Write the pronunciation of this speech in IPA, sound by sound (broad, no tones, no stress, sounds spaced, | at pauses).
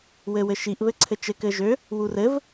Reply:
w ɘ w ɘ ʃ i ʔ β ɘ ǀʰ ɘ t͡ʃ ɘ k ɘ ʒ ø | w u r ɘ v